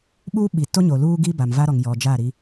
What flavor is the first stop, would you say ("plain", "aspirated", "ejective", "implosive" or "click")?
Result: implosive